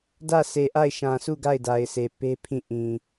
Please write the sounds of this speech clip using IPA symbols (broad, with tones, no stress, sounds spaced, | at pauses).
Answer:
d ä˦˨ s e˨ ʔ a˦˨ ɪ̯ ʃ ã˨ s u˦˨ ɡ a˦˨ ɪ̯ d a˨ ɪ̯ s e˨ p e˦ pʰ ĩ˦˨ ʔ ĩ˨